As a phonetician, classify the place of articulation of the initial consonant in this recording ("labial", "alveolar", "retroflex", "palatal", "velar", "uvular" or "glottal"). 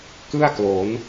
velar